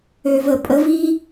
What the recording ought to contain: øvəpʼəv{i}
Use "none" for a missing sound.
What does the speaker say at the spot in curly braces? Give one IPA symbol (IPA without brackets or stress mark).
i